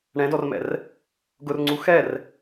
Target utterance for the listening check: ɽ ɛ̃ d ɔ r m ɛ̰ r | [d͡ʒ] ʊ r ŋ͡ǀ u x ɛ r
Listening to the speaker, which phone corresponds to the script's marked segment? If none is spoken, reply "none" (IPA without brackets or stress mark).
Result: ɡ